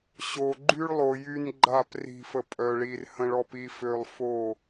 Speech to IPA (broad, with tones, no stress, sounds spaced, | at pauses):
ɕ o˨ ɡ͡ǃ y˦ ɭ lˠ o˨ j y˦ n ɡ͡ǃ a˦˨ p r i̤˨ f ə˨ pʼ œ˨ ɭ i˨ r h ə̃˨ ɭ ɔ˨ p i˨ f ø˨ lˠ f o˦˨